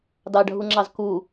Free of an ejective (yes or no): yes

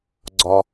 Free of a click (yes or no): no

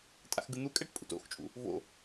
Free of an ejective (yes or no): no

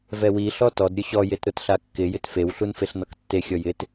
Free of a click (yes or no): yes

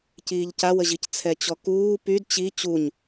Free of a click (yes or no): yes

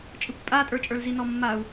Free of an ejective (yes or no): no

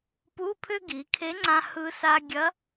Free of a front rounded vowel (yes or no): no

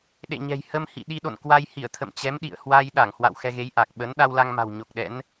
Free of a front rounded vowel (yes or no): yes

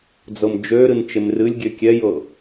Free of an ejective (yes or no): yes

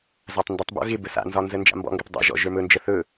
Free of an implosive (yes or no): yes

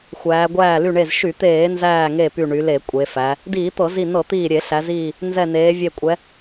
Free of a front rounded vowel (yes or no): no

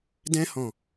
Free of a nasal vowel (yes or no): no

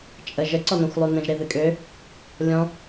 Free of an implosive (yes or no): yes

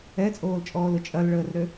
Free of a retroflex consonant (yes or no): no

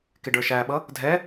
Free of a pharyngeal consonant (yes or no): yes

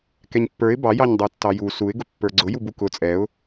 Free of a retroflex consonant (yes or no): yes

